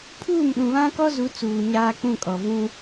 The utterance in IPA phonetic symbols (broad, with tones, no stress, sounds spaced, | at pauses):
pʰ uː˦˨ m ɗ ũ˨ β ã˦ k ɔ˦ z u˨˦ t͡s uː˨ ɲ aː˦ k͡p ũ˦˨ kʼ ɔ˨ v ũ˦